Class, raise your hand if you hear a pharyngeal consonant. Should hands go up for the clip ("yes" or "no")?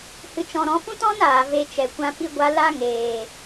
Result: no